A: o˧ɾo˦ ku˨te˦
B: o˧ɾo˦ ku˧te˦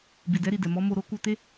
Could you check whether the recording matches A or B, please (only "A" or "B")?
B